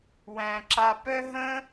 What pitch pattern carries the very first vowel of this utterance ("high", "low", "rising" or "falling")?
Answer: low